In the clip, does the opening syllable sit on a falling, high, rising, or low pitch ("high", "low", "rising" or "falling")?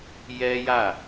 high